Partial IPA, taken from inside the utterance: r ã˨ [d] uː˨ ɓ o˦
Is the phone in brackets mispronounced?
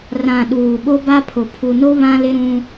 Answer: yes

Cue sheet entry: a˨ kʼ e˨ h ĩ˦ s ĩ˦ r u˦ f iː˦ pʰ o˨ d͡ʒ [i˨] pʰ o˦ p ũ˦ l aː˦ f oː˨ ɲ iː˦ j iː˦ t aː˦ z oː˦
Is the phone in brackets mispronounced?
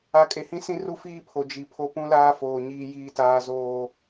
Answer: no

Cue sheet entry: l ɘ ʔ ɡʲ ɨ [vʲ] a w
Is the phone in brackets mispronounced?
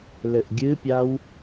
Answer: yes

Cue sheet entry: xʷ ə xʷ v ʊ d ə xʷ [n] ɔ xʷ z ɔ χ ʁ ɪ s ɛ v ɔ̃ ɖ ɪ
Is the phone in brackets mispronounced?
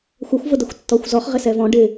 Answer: yes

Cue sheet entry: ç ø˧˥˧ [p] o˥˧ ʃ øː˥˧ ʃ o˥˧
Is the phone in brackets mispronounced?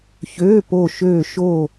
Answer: no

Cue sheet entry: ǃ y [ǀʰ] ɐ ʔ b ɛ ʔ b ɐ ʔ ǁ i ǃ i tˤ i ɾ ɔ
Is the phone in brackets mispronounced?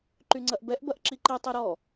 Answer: yes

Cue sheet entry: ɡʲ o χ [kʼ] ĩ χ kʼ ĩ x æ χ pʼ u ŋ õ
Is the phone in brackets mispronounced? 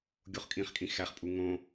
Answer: no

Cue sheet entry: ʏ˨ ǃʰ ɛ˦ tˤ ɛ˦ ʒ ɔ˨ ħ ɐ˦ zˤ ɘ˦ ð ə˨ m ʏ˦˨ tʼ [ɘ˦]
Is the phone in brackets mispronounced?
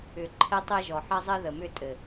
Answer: yes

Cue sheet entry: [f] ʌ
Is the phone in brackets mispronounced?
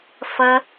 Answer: no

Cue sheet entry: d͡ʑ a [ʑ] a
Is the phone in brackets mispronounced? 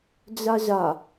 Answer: no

